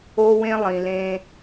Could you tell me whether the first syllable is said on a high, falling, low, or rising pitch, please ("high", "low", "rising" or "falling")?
high